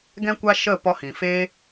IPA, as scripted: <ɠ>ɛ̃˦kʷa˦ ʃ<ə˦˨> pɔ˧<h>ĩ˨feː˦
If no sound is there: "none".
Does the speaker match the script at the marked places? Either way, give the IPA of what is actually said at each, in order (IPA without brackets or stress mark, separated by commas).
ɡ, ə˦˨, h